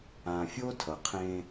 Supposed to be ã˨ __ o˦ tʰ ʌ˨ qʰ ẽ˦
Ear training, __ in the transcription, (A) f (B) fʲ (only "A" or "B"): B